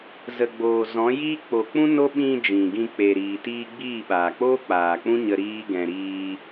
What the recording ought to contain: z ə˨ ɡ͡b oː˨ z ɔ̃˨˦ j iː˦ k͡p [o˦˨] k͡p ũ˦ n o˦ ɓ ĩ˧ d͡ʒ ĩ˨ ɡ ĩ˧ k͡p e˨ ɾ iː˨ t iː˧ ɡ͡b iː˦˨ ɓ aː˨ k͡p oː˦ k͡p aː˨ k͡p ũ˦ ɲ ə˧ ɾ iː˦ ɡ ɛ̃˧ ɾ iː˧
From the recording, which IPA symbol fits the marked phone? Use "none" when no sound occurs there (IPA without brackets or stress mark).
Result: o˨